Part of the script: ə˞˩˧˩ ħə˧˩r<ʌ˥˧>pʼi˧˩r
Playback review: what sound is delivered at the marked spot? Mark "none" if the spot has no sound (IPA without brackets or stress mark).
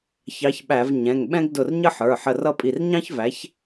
ʌ˥˧